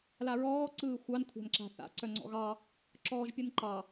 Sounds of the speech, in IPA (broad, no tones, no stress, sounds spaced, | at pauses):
l a ɹ ɔː ǀ ɯː xʷ ɑ n kʷʰ a̤ n ǁ a̤ θ a̰ ǀ œ ŋ͡ǀ ɔ̰ ɣ ɑ | ǁ ɔː ʒ pʲ ɯ n ǃ ɑ